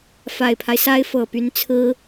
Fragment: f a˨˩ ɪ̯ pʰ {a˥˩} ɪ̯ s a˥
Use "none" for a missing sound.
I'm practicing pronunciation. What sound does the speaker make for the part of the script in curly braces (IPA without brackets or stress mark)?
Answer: a˦